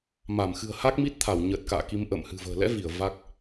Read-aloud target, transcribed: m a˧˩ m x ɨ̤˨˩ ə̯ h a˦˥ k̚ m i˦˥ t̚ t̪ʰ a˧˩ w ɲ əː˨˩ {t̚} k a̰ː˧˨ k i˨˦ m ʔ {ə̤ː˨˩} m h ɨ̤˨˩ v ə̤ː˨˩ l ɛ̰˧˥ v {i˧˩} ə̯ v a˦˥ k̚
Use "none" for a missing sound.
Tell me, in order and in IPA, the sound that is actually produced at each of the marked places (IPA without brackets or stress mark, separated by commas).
t̚, ə̰ː˧˨, i˧˩